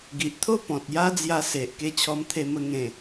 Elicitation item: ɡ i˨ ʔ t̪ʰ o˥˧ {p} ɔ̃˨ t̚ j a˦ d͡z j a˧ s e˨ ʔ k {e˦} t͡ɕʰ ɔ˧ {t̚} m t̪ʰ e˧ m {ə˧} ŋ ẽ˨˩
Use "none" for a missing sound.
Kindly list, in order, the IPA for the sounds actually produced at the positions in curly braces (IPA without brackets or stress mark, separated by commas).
p, e˧, none, ə˧